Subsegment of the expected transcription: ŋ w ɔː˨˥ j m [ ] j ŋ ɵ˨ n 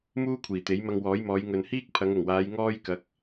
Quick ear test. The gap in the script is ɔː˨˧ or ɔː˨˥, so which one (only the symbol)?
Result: ɔː˨˧